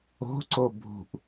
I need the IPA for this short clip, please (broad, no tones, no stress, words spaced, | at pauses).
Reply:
o̤ǀo bʱṳʔ